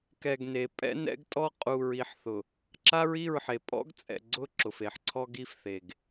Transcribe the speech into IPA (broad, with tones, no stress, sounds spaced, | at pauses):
k ɛ˨ ɡ n e˨ pʼ ɛ̰˦ n ɛ̰˦ ɡ tʼ ɔ˦ qʼ u˨ ɹ i˨ ħ θ ʊ˨ | ǁ a˦ ɹ i˦˨ ɹ ħ e˨ pʼ ɔ̰˦ ɡ t͡sʼ ɛ̰˨ ɡ͡ǀ ʊ˦ ǁ ʊ˨ f e˨ ħ ǀʰ ɔ˦ ɡ i˦ f θ e˨ ɡ